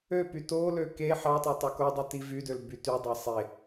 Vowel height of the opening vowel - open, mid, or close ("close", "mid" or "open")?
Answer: mid